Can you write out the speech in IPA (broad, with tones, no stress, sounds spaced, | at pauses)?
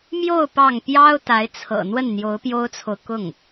m j o˥˧ ʊ̯ p ɑ˥˩ ŋ p j ɑ˥ ʊ̯ t̪ a˧˥ ɪ̯ t͡sʰ ɤ̰˨˩ n̪ w ə˥˩ n n̪ j o˧˥ ʊ̯ p j o˥ ʊ̯ t͡sʰ o˨ ʊ̯ k ʊ˥˩ ŋ